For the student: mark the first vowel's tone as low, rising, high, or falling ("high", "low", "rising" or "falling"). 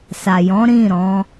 low